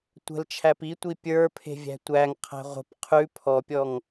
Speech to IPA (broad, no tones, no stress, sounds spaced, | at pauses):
tʷ ə̤ l t͡ʃʰ æ p i tʷ i pʲ ə˞ pʰ e̤ vʲ æ̤ tʷ æ ŋ qʰ æ̤ ʁʷ ə̤ p qʰ ʉ pʰ ɔ pʲ ɔ ŋ